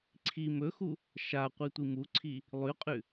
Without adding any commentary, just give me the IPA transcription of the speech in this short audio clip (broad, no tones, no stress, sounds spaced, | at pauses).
ǀʰ i m ɵ x u | ʃ a qʷ i tʷ i m u ǀʰ i | lˠ ʉ qʼ ʉ